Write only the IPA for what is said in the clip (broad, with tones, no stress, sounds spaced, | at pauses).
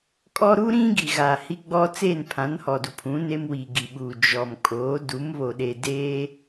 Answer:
kʼ ɔ˦ ɾ u˦ ɾ ĩ˦ ɡ i˨ ɣ a˨ h i˦ ɡ͡b ɔ˦ t͡s eː˦˨ n pʰ ã˨˦ n h ɔ˨ d u˨ pʰ ũ˨˦ n e˦ m w iː˨ ɡ i˨ ɓ uː˨ d͡ʒ ɔ˨ m kʼ oː˨˦ d u˨˦ m β o˨ ɗ e˨ d eː˦